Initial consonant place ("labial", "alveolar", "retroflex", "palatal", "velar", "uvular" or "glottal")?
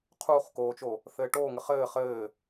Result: uvular